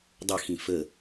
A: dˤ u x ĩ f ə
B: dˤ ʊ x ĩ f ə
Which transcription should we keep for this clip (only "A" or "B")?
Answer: B